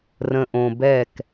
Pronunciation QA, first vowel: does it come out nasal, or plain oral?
nasal